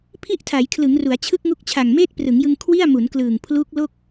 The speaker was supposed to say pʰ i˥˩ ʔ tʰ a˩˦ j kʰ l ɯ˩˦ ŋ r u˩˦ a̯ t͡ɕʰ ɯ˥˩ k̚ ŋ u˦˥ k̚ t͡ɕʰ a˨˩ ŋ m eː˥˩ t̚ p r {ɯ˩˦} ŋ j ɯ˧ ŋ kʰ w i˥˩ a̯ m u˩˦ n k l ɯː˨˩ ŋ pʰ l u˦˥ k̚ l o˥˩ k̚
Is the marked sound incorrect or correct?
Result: correct